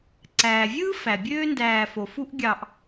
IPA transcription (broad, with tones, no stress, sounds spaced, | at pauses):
ǀ æː˩ vʲ ɯː˥ f æ˩ bʲ øː˦ n d æː˨ f o˩ f u˦ ʔ ɡʲ ɑ˨ ʔ